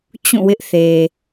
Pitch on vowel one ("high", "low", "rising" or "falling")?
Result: falling